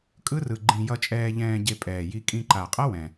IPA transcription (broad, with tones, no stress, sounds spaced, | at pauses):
kʼ ɯ˦˥ r ɯ˨˩ ɡ͡ǃ ĩ˧ j ʌ˧ t͡ʃʼ ɛː˧ ʎ ɛ̃ː˧ ɟ e˧ pʼ ɛː˨˩ j i˧ kʼ ĩ˧ ǃ a˨˩ qʼ ʌ˦˥ w ɛ̃˨˩